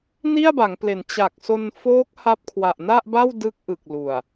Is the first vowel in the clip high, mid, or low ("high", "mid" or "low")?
high